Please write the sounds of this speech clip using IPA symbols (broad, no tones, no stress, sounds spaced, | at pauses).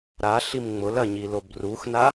ɾ a ɬ i m ŋ͡m ʊ l ɐ ɲ i l o b r u x n a